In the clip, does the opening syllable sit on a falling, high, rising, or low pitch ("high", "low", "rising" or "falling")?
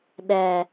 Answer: low